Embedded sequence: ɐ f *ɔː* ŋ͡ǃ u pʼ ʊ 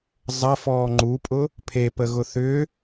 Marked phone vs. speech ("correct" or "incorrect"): correct